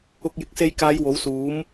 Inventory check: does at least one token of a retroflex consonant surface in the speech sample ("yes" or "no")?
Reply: no